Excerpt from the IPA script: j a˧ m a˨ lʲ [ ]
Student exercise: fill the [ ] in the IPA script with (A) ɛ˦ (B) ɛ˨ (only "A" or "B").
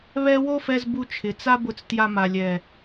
B